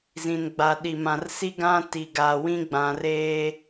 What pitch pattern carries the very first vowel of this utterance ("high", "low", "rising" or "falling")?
low